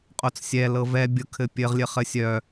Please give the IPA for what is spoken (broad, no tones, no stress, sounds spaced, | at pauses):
qʼ o t͡s sʲ ɛ l ɤ v ɛ bʲ ʊ kʰ ɘ pʲ ɘ ʁ lʲ ɘ χ ɘ sʲ œ